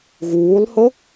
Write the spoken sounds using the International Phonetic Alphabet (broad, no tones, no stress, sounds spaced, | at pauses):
ɣ uː lˠ h o